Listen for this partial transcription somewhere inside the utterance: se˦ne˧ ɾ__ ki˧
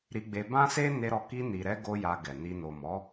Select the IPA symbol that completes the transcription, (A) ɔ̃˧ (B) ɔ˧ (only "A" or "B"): B